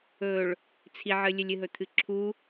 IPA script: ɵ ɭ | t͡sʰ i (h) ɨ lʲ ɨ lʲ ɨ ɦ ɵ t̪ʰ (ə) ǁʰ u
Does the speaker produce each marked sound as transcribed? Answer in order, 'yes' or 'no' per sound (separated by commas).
no, no